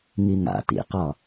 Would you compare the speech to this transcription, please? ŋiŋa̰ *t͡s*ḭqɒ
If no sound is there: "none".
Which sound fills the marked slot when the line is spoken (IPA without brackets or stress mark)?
t